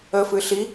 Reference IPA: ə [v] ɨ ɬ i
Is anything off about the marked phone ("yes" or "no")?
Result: yes